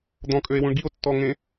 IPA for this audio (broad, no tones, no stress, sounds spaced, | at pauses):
d̪ ɔ̃ kʼ ø e̯ w ũ ɳ ɡ i o̯ tː ɔ ŋ ẽ